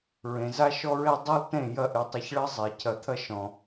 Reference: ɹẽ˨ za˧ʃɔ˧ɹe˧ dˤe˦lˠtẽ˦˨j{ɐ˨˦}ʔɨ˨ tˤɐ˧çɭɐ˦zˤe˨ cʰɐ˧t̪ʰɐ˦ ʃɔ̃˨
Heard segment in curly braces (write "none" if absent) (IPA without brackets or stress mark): ɐ˧